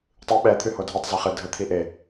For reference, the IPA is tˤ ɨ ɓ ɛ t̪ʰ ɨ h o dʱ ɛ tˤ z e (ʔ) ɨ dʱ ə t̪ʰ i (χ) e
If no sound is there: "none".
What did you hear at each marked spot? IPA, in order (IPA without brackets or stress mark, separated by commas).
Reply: χ, ʔ